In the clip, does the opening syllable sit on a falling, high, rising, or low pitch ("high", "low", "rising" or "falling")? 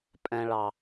low